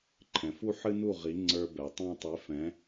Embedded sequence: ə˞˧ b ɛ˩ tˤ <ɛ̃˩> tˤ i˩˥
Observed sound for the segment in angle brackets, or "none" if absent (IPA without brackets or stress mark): ɛ̃˥